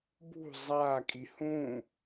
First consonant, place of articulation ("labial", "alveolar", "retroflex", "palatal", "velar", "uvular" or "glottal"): labial